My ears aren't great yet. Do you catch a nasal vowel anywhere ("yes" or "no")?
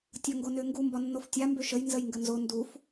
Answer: no